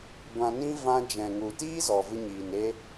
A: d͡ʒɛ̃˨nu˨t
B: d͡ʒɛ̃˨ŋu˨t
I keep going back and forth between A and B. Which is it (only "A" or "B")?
B